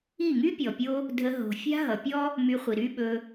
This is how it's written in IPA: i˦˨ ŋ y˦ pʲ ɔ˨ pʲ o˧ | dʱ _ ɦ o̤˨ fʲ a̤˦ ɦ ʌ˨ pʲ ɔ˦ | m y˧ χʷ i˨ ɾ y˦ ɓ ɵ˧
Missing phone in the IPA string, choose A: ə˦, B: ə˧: B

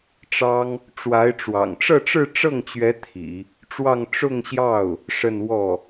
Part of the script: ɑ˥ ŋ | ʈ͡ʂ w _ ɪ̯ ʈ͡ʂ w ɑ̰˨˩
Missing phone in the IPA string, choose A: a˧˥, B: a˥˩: A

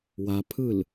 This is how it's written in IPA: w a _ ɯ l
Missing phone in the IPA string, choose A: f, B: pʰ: B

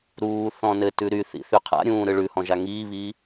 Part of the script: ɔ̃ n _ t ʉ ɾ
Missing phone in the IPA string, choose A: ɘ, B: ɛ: A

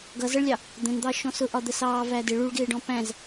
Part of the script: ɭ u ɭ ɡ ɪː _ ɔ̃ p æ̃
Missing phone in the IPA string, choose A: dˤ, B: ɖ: B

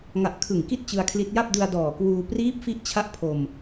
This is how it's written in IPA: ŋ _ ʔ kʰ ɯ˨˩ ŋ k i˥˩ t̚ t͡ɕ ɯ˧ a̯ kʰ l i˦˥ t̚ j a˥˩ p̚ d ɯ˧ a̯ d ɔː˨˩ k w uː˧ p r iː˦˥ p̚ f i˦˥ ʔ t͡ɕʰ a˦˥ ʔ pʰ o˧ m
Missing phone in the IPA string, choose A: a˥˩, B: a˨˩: B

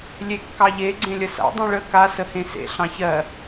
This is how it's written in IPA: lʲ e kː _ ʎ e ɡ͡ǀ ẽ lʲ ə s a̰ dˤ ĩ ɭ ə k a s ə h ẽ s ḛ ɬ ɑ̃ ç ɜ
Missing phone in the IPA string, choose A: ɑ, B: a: A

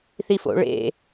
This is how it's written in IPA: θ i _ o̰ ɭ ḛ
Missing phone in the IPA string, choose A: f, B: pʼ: A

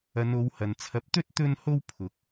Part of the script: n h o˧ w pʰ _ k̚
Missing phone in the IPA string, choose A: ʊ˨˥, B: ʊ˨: A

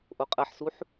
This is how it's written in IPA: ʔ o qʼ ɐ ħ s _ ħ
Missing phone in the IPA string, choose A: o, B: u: B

